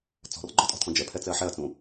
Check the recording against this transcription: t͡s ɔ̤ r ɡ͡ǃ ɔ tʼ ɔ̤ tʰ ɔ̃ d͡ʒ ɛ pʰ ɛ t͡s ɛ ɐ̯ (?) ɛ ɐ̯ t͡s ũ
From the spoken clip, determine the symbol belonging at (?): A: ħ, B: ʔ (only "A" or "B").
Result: A